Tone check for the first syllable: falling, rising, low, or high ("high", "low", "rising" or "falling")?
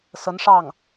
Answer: rising